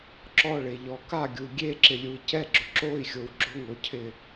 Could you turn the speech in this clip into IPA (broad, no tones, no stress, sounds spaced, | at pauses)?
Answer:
ǁ ɔ ɭ e ʎ ɔ k a ɡʲ u ɡʲ e ǁ ɪ lʲ u i̯ c ɛ ɡ͡ǁ ʊ ǁ o i̯ xʲ o w ɡ͡ǁ ʊ ŋ o cʰ ɪ